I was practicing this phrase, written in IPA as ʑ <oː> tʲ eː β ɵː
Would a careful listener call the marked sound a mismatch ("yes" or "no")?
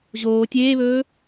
no